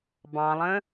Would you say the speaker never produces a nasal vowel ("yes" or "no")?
no